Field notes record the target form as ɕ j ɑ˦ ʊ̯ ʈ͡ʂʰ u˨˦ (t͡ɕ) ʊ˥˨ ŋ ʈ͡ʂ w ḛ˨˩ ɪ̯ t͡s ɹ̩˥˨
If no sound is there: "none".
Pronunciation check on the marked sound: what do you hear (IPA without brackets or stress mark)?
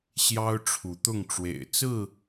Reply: t̪